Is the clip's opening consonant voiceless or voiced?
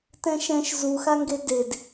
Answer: voiceless